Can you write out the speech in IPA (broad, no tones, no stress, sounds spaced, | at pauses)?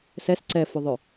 s ɛ s ǀ ɛ f ʊ ðˤ œ